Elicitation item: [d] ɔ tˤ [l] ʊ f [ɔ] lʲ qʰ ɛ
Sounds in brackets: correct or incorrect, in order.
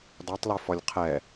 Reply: correct, correct, correct

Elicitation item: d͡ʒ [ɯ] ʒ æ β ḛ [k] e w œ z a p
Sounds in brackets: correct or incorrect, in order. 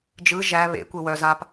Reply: correct, incorrect: kʷ

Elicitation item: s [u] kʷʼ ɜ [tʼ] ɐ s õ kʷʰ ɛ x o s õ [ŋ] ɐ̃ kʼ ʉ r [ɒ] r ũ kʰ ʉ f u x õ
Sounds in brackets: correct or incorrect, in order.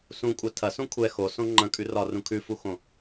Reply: incorrect: ũ, incorrect: tʰ, incorrect: ŋ͡ǃ, correct

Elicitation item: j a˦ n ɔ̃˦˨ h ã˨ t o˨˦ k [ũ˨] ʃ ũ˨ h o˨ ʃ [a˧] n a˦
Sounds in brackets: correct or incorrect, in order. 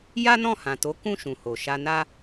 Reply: incorrect: ũ˦˨, correct

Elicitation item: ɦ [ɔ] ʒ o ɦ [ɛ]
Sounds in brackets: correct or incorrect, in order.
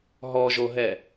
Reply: correct, correct

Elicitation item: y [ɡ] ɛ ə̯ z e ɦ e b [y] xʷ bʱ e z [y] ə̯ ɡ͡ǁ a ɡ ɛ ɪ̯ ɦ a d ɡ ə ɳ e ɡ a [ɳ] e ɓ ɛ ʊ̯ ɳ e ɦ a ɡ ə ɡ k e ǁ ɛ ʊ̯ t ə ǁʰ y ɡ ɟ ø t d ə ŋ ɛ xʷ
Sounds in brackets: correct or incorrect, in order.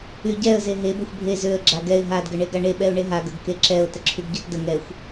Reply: incorrect: ɟ, incorrect: ø, incorrect: ø, correct

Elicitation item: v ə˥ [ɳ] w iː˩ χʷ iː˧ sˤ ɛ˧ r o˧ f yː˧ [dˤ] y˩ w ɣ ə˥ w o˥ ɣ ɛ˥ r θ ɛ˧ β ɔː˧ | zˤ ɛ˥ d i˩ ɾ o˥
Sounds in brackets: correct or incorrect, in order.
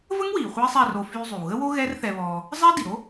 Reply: incorrect: ŋ, incorrect: zˤ

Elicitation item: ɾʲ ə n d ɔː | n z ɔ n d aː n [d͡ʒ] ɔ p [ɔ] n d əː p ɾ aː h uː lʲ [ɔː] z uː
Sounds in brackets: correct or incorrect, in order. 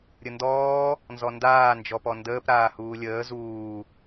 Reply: correct, correct, incorrect: əː

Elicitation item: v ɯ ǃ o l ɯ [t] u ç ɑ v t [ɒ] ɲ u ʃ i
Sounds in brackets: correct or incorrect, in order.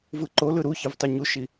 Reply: incorrect: ɾ, incorrect: ɑ

